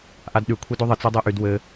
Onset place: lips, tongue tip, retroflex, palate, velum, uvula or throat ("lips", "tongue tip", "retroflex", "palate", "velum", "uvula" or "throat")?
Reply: throat